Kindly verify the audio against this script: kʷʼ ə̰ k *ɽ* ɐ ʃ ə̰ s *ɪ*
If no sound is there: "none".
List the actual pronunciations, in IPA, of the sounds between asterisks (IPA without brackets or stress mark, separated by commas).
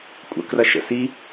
r, i